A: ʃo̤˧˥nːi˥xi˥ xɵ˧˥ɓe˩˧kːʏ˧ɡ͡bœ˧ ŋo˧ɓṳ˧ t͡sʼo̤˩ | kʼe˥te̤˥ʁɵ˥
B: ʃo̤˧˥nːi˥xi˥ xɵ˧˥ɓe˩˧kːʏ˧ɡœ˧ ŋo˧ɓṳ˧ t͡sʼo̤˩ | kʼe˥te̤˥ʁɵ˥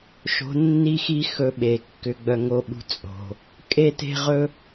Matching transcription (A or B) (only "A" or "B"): A